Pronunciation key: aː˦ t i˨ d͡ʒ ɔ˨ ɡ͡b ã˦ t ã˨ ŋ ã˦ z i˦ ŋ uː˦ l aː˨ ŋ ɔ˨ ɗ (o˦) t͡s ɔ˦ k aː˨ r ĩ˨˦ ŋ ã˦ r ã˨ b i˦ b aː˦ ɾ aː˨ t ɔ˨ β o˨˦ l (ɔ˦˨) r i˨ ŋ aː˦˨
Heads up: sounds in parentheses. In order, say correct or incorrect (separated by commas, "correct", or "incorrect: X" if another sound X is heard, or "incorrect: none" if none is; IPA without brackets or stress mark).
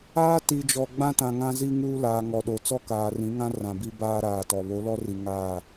incorrect: o˨, incorrect: ɔ˦